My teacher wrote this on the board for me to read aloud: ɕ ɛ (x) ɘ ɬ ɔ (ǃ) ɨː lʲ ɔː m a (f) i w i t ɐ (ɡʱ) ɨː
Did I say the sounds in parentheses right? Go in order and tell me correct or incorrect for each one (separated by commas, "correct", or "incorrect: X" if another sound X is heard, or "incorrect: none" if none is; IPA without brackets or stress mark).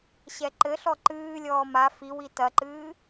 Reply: incorrect: ǃ, correct, correct, incorrect: ǃ